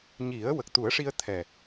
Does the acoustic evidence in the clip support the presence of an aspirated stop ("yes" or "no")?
yes